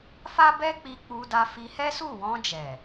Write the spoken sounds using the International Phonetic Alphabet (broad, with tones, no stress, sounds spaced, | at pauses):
f a˦ b ɛ˦ k͡p i˧ k͡p u˧ d a˧ f i˧ h ɛ˦ s u˦˨ w ɔ̃˧ d͡ʒ ɛ˨